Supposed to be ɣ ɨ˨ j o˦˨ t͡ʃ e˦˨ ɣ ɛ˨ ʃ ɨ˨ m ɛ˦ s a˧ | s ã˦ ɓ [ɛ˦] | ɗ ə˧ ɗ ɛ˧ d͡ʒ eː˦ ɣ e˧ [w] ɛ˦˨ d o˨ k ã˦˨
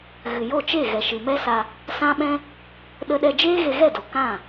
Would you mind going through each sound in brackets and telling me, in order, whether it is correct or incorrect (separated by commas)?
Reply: incorrect, incorrect